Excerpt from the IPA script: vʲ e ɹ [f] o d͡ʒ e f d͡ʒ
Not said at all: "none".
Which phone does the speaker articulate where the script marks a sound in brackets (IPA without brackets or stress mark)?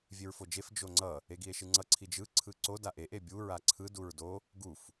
f